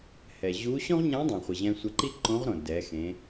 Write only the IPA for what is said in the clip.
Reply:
hɛ˩ʑu˧˥ ɕõ˥ʁɲã˧˥dˤɛ̃˩χʷɪ˩ ʑɛ̃˧sʷɛ˧ǃi˥ ǃõ˧˥ʁɾõ˩ dɛ˩˧xẽ˩˧

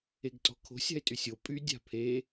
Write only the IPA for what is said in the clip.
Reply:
eɡtʼɔ̤kʰo̤sʲ a̤ɪ̯tʼysʲo pʼy dʲa̤pʰe

